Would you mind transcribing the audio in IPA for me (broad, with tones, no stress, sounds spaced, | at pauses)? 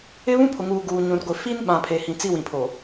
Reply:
ɪ˦ β ũ˦ pʰ ʊ˨ ŋ uː˨ ɡ uː˨ ɲ ũ˨ r ɡʷ ɪ˨ f i˦ n ɓ ã˨ pʰ e˨ h ĩ˨ t͡s i˦ w ĩ˨ pʰ o˨